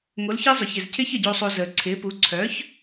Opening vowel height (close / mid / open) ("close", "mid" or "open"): mid